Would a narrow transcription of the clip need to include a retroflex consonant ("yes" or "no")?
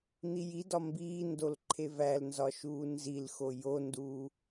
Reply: no